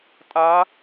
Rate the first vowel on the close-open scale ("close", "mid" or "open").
open